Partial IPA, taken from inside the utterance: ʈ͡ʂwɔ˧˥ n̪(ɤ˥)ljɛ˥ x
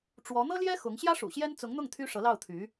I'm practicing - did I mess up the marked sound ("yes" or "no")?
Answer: no